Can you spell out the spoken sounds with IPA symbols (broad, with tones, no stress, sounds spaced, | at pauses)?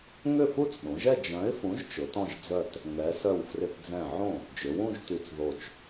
ŋ ʏ˥˩ f u˥˧ t͡s ɗ ũ˩˧ ʒ ɛ˥˧ d͡ʒ œ̃˨˥ ɪ̯ f ũ˨˥ ʒ t͡ʃ ʊ˨˥ t ɔ̃˥˧ ʒ d͡z œ˥˧ t | ŋ ɛ˩˧ s œ˧˩ w f r ɪ˧˩ t d͡z ɛ̃˧˩ ʕ õ˥˩ | d͡ʒ ʏ˩˧ w ũ˥˧ ʒ t y˧˩ t͡s ð o˧˩ t͡ʃ